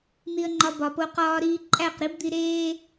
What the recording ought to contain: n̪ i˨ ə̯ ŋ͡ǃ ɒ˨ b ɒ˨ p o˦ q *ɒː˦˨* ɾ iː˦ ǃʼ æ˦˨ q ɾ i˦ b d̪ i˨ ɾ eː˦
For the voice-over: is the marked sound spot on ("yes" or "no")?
no